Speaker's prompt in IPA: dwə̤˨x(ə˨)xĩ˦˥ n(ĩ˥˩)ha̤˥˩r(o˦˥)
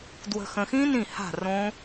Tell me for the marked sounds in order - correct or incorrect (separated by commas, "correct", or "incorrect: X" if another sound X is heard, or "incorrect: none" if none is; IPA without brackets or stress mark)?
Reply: incorrect: ə̃˨, correct, incorrect: õ˦˥